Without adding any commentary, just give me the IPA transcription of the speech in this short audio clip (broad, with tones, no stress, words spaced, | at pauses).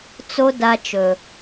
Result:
t͡so˦ da˧t͡ʃɵ˨